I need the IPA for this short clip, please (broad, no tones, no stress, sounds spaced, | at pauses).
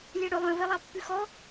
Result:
lʲ æ ɽ ɵ lˠ œ̃ v ɛ lˠ ɑ pː ʉ x ɔ